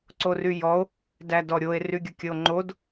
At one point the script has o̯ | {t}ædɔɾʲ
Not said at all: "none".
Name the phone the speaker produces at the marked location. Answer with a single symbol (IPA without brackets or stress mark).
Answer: d